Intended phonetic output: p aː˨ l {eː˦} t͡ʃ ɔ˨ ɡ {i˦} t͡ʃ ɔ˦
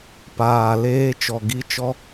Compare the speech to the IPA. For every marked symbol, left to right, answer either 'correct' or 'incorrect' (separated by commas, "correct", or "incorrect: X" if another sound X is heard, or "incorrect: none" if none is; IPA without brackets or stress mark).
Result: correct, correct